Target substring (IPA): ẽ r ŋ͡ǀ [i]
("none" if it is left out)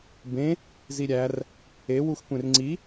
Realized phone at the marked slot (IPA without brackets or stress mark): i